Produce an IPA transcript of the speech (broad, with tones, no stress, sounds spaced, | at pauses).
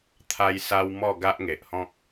t̪ʰ a˧ j s a˧ w m ɔ˥˧ ɡ a˦ ʔ ŋ e˨ ʔ h ɔ̃˦ k̚